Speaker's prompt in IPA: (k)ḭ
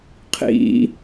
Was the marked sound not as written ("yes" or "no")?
yes